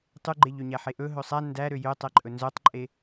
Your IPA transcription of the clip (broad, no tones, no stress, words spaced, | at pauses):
tˤʉɡ͡ǃeʎøɲæ ħeʔɵ ɦɵsˤæ ndæɾø jøtˤɛǃʼɵ nzœtˤǃʼe